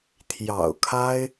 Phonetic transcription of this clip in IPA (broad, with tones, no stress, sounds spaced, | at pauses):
t̪ʰ j ɑ̰˨˩ ʊ̯ kʰ a˥ ɪ̯